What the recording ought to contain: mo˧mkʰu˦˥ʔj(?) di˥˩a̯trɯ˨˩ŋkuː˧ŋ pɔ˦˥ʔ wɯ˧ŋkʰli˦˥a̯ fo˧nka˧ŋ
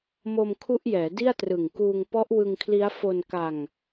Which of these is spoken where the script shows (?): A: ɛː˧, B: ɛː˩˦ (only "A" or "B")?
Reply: B